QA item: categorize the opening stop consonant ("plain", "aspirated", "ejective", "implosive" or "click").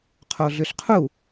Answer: aspirated